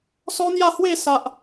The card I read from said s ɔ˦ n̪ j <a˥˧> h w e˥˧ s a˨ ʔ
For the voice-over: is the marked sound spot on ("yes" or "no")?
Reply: yes